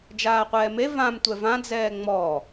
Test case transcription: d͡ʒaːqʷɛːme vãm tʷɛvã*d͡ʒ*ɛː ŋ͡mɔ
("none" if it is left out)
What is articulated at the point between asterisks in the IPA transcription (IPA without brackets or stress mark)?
d͡z